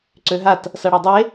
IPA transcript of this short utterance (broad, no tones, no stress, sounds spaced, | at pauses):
ǀ ø ɦ a t | s ʌ ɽ ɛ dˤ e